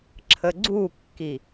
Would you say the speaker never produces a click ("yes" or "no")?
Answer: no